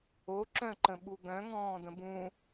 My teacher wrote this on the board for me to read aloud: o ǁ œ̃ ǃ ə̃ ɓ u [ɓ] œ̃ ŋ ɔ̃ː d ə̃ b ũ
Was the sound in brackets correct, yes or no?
no